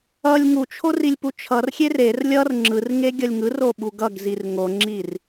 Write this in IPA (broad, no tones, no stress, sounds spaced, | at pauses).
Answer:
ʌ lʲ ŋ u t͡ʃʰ o r i lʲ p u t͡ʃʰ ʌ r xʲ e r e r lʲ ʌ r ŋ͡ǁ ɯ r ŋ e ɡʲ ʌ lʲ ŋ ɯ r o ɓ u ɡ ʌ ɡ z i r ŋ o ŋ͡ǁ i r